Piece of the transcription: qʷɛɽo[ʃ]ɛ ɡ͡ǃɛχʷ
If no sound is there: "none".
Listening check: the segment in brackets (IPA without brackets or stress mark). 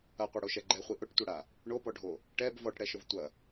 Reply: ʃ